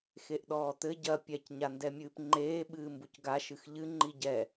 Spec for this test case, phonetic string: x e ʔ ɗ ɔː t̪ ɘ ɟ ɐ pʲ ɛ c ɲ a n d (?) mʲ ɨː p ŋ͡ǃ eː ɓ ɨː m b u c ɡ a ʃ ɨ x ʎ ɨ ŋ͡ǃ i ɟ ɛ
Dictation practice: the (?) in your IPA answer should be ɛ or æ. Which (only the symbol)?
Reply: ɛ